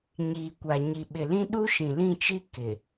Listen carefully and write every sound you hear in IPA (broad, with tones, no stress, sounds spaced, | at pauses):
ɲ iː˨ kʷ a˨ ɲ i˨ ɓ ɪ˨ l ĩ˦ ɗ u˦ ʃ ĩ˨ l ĩ˦˨ t͡ʃ i˦ k ɪ˨